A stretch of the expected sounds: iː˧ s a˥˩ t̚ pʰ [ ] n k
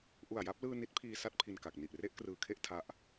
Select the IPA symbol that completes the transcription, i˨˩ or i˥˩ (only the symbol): i˨˩